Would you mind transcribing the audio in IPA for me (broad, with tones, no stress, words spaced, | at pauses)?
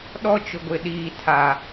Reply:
ɗɔ˦t͡ʃʊ˨ɡʷɪ˨ ɗiː˨tʰa˨